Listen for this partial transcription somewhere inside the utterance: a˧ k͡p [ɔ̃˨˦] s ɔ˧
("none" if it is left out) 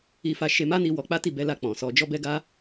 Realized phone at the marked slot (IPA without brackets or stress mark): ɔ̃˨